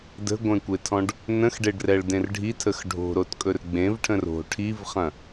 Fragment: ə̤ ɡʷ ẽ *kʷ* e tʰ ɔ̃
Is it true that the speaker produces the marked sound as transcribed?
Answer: yes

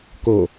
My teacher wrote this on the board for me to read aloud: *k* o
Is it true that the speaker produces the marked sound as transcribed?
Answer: yes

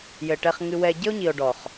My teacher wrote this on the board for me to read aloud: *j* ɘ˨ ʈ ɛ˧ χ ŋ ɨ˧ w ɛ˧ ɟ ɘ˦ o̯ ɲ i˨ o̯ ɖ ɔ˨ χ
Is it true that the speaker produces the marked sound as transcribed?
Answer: yes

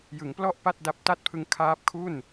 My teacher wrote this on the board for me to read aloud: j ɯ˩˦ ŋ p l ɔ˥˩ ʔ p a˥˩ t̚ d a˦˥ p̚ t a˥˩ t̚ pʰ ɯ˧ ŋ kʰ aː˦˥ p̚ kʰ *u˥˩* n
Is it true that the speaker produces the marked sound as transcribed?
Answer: yes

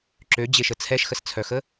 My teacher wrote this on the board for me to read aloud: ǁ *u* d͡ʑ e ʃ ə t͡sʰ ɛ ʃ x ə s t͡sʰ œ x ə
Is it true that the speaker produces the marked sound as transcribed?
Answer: no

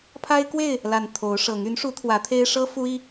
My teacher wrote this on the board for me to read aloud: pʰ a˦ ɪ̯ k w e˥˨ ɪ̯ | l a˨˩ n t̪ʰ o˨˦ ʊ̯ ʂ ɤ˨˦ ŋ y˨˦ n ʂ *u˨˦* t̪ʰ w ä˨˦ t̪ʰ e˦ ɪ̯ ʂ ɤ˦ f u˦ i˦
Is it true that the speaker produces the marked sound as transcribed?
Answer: yes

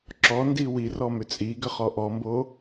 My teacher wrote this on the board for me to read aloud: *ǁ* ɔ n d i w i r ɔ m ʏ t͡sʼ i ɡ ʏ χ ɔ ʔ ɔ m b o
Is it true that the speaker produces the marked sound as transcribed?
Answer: yes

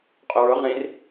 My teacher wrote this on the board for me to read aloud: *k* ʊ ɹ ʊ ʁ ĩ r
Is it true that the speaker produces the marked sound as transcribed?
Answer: no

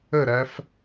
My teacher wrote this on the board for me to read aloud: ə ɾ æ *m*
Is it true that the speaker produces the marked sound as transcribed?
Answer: no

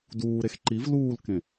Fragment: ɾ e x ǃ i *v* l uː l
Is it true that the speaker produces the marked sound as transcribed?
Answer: yes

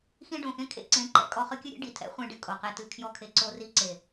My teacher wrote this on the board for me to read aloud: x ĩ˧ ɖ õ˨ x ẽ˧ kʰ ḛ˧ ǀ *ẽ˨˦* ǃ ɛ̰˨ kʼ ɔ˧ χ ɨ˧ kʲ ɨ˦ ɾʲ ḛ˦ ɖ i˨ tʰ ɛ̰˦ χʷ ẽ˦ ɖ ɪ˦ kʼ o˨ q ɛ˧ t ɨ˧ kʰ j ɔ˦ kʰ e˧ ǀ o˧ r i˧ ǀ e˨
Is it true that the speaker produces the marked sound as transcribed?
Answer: yes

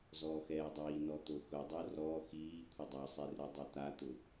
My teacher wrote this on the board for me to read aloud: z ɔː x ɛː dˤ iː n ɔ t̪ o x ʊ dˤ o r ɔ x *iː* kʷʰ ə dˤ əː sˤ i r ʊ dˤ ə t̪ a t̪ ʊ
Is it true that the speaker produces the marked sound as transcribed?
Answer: yes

